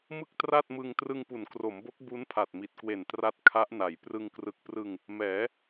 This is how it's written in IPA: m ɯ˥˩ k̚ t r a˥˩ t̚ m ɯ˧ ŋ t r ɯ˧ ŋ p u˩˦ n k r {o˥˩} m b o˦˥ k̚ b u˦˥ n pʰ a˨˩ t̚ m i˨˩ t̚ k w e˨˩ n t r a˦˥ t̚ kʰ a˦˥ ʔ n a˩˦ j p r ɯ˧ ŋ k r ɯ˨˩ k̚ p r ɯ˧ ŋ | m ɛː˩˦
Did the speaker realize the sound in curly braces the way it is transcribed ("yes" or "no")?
no